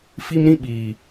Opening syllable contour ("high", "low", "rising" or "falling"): high